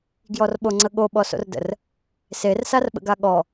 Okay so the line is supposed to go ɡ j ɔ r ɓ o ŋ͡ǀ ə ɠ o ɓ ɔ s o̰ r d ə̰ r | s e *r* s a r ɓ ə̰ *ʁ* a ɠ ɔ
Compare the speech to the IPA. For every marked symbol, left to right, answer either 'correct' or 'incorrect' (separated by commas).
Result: correct, incorrect